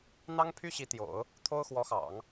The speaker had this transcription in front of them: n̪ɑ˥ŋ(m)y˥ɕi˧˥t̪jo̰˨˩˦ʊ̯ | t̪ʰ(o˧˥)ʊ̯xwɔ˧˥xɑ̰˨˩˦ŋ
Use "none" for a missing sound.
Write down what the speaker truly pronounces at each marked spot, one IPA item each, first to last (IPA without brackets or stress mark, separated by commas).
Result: pʰ, o˥